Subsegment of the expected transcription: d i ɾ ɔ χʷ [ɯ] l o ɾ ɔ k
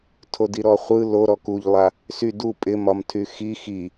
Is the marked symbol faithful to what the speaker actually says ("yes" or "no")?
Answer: yes